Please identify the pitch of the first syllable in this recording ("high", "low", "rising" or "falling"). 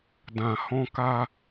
low